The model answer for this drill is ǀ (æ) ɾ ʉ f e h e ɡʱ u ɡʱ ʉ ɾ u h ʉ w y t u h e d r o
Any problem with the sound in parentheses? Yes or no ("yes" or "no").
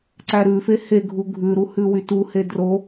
no